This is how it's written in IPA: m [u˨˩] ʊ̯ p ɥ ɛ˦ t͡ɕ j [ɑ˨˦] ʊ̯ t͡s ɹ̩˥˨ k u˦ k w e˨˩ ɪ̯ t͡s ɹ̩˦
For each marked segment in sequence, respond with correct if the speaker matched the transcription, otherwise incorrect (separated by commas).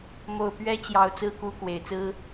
incorrect, correct